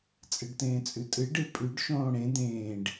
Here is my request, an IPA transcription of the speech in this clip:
t͡sʼɨɖtẽːt͡sʼʉtʼɨ ɖɨpʼʉɖ ʃõːɽẽ d̪ẽːɖ

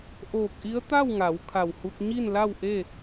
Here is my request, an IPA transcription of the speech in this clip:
ʔoː˧˩k̚ʔi˧˥ə̯ t̪a˥˨wŋa˩˧w kʰa˧˩whu˧k̚ ɲi˥˨nla˥˨wʔe˥˨

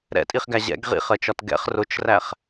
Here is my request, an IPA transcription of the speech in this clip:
ɾɛ̰tʼiχɡæ ʑɛ̰ɡ ʁḭχɜt͡ʃɒt ɡɛ̰χ rʊt͡ʃræχ

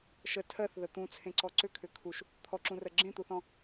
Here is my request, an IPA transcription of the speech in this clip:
ʃə tʰɜθðə t̪ũt͡sʰẽǀɔ ǀʏkʰʏ kʰuʃ | t̪ʰɔǁũrɜ ɡ͡ǁẽt̪uθɔ̃

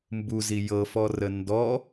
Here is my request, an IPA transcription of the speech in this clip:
mbuzi jɤfɔrə ndɔ

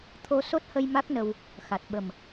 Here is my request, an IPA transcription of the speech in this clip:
t̪ʰo˧so˦˥t̚hə˧j ma˦˥k̚nə˧w | xa˨˩t̚ɓə˨˩m

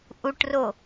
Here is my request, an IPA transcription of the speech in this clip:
ʔuʈro

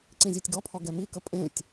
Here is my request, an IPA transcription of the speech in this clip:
ǀĩzʲɛtʲɡɔpʰɔ ɡɛmikə pʼẽtʲ

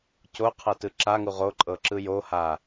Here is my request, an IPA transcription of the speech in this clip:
co qʰɤtɯǁaŋu ʁo ǃʼɤǁɯjoha

